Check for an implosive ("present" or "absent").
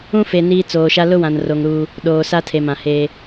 present